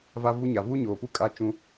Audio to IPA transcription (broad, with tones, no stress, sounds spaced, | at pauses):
v a˦ v u˦ ɲ a˨ v uː˦ ɲ oː˨ p u˦ kʼ a˦ t͡ʃ ũ˦